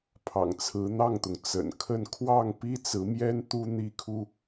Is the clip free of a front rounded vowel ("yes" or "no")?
yes